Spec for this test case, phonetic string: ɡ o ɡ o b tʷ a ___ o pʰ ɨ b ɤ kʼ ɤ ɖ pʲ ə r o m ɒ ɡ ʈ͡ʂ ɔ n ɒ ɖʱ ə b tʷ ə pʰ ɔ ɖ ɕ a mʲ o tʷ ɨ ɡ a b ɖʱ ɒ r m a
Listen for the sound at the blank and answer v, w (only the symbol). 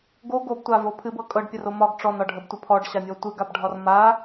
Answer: v